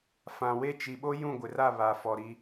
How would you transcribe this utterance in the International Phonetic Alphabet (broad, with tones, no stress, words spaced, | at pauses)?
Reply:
fã˨we˦˨ t͡ʃi˨ɓo˦ jũ˦˨ɡʷɪ˨ra˦˨ βa˨fɔ˨ɾi˦